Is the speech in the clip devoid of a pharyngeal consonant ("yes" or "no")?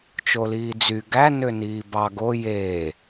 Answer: yes